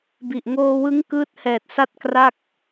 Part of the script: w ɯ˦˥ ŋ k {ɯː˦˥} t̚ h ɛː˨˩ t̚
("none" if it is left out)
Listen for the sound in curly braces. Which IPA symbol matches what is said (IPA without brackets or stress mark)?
ɯː˦˥